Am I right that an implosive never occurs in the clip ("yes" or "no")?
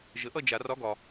yes